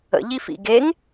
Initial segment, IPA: ə̰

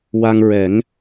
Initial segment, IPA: w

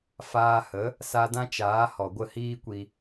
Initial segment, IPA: f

